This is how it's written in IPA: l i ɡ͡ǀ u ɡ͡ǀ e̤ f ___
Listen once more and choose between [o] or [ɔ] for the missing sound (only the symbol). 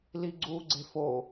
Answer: o